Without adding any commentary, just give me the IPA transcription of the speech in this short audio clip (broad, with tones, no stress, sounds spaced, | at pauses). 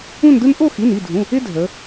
ũ˥˧ n d ɯ˥ n ʔ o˥˧ x i˩˧˩ n i˩˧˩ dʱ ũ˩˧˩ | ɪ˥ dʱ ə˩˧